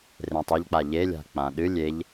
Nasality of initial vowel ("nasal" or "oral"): nasal